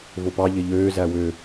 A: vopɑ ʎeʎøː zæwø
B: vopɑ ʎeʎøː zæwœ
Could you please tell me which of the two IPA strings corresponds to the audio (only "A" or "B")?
A